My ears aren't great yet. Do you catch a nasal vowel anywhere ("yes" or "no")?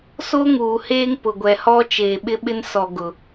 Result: no